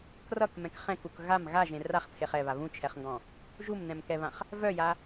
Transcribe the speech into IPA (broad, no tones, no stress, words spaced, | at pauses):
krʌkmɛ̃k χɛ̃kuk ɣam ɣaʒẽ raχt͡sʰeχ ɛβa βũt͡ʃʰɛχŋɡɔ̃ | ʒumnɛ̃mkɛβãχ | vœja